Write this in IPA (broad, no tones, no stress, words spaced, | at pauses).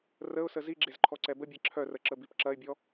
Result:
rəʊ̯sə ziɡ͡ǁezǃʰɔǀɛ bəbʲɛ ǁʰœrəǁəbip ǁɐɪ̯bʲɔ